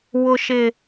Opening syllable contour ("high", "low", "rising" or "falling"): high